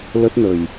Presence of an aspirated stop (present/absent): absent